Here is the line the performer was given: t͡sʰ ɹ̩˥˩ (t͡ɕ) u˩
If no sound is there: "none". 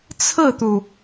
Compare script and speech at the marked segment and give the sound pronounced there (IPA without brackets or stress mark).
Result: t̪